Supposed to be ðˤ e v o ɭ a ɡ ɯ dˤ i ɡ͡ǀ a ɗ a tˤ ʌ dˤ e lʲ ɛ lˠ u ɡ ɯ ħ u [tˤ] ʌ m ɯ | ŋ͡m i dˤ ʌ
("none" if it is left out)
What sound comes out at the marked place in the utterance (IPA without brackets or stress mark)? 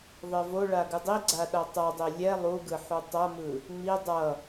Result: tˤ